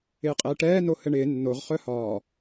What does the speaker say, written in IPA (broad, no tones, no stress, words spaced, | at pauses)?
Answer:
ɪːqʼɛːʈɛː nohɘɳɪː nːoʁ χœhɒː